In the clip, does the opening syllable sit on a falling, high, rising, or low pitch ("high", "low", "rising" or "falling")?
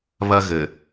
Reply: high